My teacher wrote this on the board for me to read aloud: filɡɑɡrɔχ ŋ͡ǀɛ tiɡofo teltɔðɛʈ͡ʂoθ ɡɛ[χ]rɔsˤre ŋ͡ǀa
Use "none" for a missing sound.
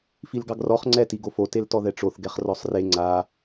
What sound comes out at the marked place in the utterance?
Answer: χ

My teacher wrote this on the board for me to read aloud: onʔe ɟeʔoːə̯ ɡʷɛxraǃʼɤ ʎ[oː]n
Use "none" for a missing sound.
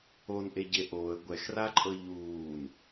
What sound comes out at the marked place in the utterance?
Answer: uː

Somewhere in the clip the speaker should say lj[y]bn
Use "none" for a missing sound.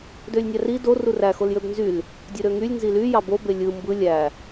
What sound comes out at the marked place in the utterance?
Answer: ø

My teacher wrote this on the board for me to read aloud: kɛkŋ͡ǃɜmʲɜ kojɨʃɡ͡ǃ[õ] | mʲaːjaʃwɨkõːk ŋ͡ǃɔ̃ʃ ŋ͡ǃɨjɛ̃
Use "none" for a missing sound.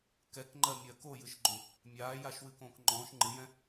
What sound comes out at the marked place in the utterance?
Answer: õ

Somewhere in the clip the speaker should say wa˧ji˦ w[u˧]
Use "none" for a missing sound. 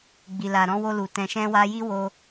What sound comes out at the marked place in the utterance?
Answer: o˧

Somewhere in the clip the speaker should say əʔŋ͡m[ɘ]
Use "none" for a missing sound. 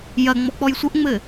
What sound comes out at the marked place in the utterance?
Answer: ɘ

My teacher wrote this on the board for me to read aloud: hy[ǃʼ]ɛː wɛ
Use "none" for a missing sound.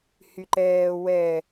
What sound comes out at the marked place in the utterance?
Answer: ǃ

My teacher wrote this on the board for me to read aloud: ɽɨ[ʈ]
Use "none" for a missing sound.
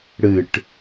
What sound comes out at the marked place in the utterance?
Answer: ʈ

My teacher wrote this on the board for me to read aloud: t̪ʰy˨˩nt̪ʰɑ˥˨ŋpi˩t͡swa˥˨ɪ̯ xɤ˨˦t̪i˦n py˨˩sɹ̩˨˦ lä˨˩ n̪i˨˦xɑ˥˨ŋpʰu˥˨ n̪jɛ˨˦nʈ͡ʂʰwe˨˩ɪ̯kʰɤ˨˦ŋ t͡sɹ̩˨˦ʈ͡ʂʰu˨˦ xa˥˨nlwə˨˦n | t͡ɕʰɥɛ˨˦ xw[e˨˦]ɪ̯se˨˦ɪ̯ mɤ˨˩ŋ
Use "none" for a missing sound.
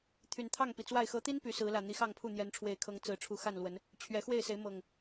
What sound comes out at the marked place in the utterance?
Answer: e˥˨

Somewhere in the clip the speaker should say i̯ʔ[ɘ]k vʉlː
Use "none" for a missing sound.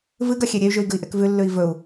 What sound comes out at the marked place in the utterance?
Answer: e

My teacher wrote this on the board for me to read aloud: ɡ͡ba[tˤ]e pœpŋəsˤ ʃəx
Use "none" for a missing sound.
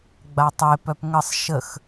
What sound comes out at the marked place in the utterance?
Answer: tˤ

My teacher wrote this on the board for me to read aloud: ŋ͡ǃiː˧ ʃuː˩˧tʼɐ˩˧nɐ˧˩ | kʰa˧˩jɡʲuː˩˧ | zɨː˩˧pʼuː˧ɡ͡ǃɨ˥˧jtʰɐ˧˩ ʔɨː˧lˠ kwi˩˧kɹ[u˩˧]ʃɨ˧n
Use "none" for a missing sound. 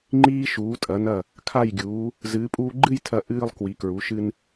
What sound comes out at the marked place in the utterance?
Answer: u˩˧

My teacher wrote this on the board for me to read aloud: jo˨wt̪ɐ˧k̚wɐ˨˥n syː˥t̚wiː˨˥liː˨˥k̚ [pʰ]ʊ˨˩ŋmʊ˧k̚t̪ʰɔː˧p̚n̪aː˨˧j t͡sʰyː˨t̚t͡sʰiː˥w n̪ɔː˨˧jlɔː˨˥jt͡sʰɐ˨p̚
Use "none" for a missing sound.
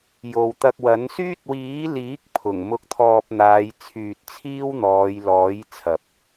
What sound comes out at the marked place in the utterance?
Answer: pʰ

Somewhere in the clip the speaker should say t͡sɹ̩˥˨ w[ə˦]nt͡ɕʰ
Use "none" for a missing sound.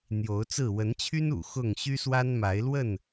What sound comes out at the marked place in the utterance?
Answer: ə˨˦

